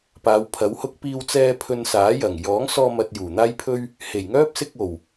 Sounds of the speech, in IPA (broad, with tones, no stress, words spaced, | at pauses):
paː˨˧wpʰɐ˨˥whʊ˥k̚ piː˧wt͡sɛː˧ pʰɵ˧nsaː˨˥jɐ˨˩ŋ jɔː˨˥ŋsɔː˧ mɐ˧t̚juː˨˩n̪aː˥jpʰɵ˥ɥ | he˨˩jŋœː˥p̚sɪ˧k̚ o˨˩w